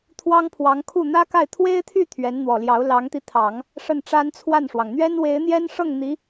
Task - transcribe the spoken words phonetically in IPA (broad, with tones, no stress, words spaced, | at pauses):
t̪ʰwɑ˥ŋpʰwɑ˧˥ŋkʰu˥˩ n̪ä˥ka˥˩ɪ̯ t̪ʰwe˥ɪ̯t̪ʰy˥˩ t̪ʰɥɛ˧˥nn̪wɔ˨˩ljɑ˧˥ʊ̯ lɑ˧˥ŋt̪i˧ t̪ʰɑ˨˩˦ŋ | ʂə˥˩nʈ͡ʂa˥nt͡sʰwa˥˩nʂwɑ˩ŋ n̪ɥɛ˥nwe˧˥ɪ̯n̪jɛ˥n ʂɤ˥˩ŋ n̪i˧˥